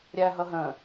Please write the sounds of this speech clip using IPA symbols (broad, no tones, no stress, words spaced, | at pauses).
ɾʲæɦʌɦə̃